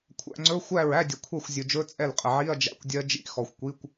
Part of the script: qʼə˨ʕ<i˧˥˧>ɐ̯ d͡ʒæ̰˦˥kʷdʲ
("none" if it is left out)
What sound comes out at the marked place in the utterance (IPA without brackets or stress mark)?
i˧˥˧